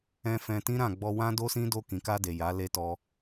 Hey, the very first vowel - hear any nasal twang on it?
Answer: yes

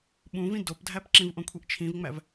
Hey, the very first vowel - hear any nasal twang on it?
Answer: yes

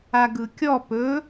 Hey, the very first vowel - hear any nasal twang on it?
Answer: no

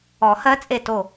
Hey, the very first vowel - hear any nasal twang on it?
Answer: no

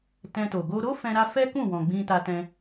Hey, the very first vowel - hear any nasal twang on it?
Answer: yes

